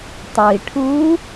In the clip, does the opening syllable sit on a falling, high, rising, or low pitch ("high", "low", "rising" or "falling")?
low